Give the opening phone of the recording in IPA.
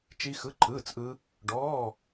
t͡ʃ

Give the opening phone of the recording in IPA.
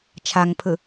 t͡ʃʰ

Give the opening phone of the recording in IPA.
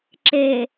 ǁ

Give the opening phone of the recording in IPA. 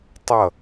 tˤ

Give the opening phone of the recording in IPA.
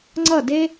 ŋ͡ǀ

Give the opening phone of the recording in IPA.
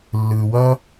lː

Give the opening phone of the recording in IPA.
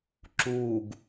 ǁ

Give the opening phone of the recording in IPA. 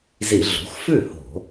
z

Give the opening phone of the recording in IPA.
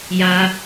j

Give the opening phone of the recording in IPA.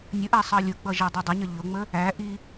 nʲ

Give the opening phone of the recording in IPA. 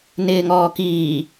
n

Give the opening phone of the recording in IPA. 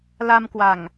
l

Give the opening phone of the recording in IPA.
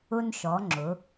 ʊ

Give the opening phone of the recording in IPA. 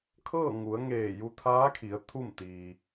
kʰ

